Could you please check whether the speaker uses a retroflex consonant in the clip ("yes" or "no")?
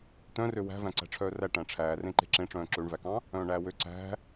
yes